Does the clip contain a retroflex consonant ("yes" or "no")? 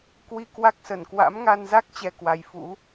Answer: no